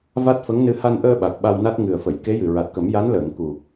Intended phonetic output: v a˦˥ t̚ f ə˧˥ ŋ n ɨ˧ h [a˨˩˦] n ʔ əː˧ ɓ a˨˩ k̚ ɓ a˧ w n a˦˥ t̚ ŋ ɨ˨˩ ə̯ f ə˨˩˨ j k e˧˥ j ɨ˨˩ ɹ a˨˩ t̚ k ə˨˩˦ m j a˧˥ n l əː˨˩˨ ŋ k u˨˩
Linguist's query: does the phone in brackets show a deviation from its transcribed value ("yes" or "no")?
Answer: yes